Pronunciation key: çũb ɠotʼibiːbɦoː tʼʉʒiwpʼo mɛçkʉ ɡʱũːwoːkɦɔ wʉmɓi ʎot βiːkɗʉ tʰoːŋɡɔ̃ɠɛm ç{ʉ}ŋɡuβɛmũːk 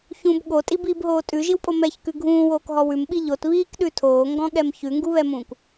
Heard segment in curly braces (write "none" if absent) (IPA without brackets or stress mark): ʉ